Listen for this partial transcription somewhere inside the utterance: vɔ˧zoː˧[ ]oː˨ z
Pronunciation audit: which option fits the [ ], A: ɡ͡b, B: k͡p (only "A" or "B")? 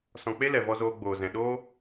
A